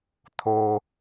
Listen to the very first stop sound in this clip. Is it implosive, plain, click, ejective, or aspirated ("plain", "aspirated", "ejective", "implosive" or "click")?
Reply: aspirated